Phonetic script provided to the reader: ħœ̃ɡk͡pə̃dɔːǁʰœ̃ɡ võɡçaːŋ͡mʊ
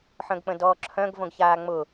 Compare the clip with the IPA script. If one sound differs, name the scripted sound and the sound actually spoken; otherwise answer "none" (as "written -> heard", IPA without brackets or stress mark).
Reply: none